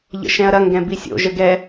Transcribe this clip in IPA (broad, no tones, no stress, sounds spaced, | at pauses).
ʎ ə̰ ʃ ɛ̃ ɐ̯ ɾ ɐ ŋ ɡ ɛ̃ b i sʲ o̰ ʒ ə ɡ ɛ